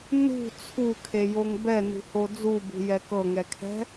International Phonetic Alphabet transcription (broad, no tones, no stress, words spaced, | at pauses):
nṳ t͡sʰukʰejoŋ bɛnṳho d͡zubṳjɛ kɤŋɛkʰɛ̤